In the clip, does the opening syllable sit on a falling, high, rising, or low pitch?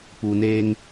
low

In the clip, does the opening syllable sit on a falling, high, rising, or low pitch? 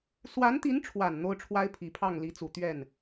rising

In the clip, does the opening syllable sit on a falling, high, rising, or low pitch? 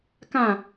falling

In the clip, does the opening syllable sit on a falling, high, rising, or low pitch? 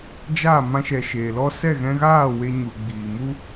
falling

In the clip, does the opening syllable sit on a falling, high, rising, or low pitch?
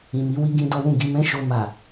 low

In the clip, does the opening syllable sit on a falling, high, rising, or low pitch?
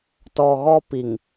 low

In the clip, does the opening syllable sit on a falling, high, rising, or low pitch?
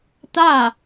falling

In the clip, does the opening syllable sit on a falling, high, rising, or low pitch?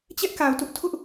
high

